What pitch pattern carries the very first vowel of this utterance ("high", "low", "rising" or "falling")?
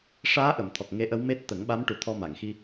rising